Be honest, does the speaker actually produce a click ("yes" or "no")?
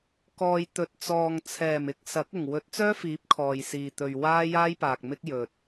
no